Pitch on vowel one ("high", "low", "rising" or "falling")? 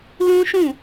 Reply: high